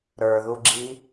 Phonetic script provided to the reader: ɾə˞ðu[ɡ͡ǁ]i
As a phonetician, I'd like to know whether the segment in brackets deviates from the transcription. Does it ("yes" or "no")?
no